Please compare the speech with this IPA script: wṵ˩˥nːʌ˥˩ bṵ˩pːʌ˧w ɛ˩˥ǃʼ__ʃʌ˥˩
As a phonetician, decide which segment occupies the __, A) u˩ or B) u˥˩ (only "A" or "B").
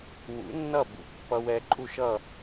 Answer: B